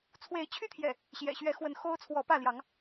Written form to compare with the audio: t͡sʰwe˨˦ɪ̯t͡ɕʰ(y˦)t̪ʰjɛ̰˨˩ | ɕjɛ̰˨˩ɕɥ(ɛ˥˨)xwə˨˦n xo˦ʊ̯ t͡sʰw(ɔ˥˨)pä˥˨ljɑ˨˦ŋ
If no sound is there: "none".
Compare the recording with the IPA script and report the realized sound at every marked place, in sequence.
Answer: y˦, ɛ˨˦, ɔ˨˦

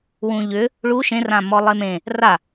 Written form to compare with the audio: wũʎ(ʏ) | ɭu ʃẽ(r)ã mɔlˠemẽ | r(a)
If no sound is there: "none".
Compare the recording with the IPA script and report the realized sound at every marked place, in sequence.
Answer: ʏ, r, a

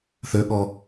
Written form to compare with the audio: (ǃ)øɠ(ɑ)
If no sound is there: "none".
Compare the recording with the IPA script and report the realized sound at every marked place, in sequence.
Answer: θ, ɔ

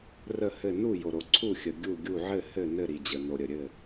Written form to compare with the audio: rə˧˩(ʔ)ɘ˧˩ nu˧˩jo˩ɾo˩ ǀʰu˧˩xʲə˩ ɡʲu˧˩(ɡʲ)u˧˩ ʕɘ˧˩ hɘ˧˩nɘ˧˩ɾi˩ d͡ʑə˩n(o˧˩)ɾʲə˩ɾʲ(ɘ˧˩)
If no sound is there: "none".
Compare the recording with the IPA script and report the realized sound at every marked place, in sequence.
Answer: h, ɡʲ, o˩, ɘ˧˩

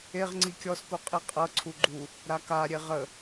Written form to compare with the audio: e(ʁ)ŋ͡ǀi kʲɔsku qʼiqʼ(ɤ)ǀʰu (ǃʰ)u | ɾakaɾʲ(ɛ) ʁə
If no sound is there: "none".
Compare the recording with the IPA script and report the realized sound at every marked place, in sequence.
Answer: ʁ, ɤ, ɡ͡ǃ, e

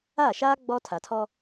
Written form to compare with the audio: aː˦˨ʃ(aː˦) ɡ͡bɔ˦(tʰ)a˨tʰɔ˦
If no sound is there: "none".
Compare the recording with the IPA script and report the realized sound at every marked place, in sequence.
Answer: aː˦, tʰ

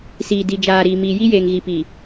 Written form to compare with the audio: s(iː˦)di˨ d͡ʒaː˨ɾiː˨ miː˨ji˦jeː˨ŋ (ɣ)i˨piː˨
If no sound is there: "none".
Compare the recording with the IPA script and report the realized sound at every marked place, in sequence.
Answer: iː˨, ɣ

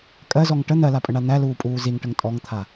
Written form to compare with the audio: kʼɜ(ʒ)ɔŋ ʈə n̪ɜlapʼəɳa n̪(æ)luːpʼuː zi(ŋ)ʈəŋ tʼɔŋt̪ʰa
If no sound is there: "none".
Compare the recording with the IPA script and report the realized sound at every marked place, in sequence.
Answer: z, æ, ŋ

